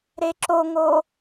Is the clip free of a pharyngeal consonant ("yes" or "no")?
yes